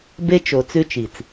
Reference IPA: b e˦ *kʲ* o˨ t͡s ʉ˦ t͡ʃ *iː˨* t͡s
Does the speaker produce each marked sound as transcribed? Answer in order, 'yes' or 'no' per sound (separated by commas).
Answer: no, no